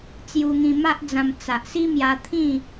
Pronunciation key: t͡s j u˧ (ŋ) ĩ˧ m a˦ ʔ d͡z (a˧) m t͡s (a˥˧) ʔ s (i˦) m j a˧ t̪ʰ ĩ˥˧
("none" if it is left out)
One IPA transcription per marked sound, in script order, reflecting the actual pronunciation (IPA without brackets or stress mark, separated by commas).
ŋ, ã˧, a˨, i˦